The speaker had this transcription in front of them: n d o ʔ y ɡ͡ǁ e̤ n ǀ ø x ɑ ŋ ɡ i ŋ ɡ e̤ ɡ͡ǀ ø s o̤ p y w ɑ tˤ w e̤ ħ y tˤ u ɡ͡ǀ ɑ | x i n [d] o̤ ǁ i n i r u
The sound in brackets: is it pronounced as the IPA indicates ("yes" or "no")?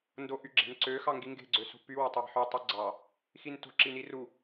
no